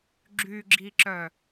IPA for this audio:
ɡ͡ǁ y ɡ͡ǁ i ǁ œ

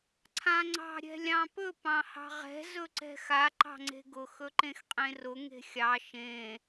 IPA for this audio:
ǀʰ ã ŋ͡ǀ ɑ̤ ɾʲ ɛ̤ lʲ ɑ̃ p ɵ p ɑ̃ h ɑ̤ ʁ ɛ̤ z ɵ ǀ ɛ̤ x a ǃ ɑ̤ ŋ͡ǀ e̤ ɡ ʊ x ɵ ǃ ẽ x qʼ ẽ r ʊ ŋ e̤ xʲ ɑ ʃ ẽ

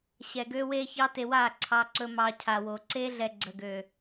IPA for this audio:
ɕ ɛ˧ ɡ ø˦ w e˦ ç ɑ˦ t e˧ w a˦˨ ǀʰ ɑ˧ ǀ ɵ˧ m ɑ˧ cʰ a˨ w o˨ ǀ e˦ ɮ ɛ˨ ɡ͡ǀ ə˨ ɡ ø˨

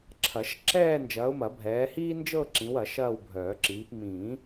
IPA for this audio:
ǁʰ ɐ˨˩˦ ʃ ǁ ɛː˥˧ n d͡ʒ ɐː˨˦ ʊ̯ m ɐ˨˩˦ bʱ ɛː˨˦ h iː˥ n d͡ʒ ɤ˥˧ ǁ ĩ˨˦ w ɐ˨˩˦ ʃ ɐː˥˧ w bʱ œː˨˩˦ ǁ iː˨˦ p m ĩː˨˩˦

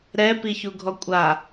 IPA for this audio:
ɾ ɛ p i ç u ɡʱ ɔ kʷʼ a

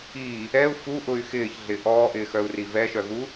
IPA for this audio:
i | ɛ u̯ f u ʔ ʊ y̯ x ɪː ç ɮ ɪ ʔ ɔː ʔ ɪː x œ u̯ r i v ɛ ʃ œ ɣ u

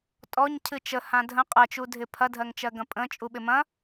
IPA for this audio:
tʼ ɔ ɲ cʰ ɨ t͡ʃ ə h ã dʱ ə̃ qʼ ɜ t͡ʃ u dʱ ɪ pʰ ɐ dʱ ɜ ŋ t͡ʃ ɜ ɡ ɐ̃ pʼ ə̃ t͡ʃʼ u ɓ ɪ m ɐ̃

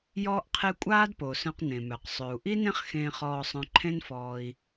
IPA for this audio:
j ɔː˧ ʔ qʰ e˧ kʷʼ aː˥ d p o˩ s œ̃˧ q n ẽ˩ m œ˩ q sˤ ø˩ u̯ ʔ i˥ n ẽ˥ χ x ẽː˧ χ ɔː˧ sˤ œ̃˧ ǃʰ ẽ˥ n f ɔː˧ i̯

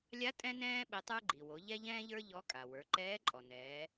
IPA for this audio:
lʲ a˧˥ tʼ ɛ̃˥ n ɛ̃ː˥ ɓ ɛ˧ tˤ ə˞˥ ɡ͡ǃ i˩ w o˩˧ ʎ ɛ˥ ʎ ɛ̃ː˥ ʎ ə˞˥ ʎ ɔ˧˥ kʼ a˩ w ə˞˩˧ ǃ ɛː˧˥ ǃʼ ɔ˩ n ɛː˩˧

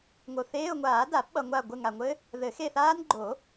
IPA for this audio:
ŋ o˨ θ eː˧˥˧ ʊ̯ ŋʷ aː˨˩˦ d a˨˩˦ p ɓ ʌ˨ ŋʷ a˦˨ ɡʷ ɘ˦˨ ŋ a˨ ŋʷ ɘ˦˥ | ð ɘ˨˩˦ x e˦˨ θ aː˦˥ n ɡ͡ǃ o˨˩˦

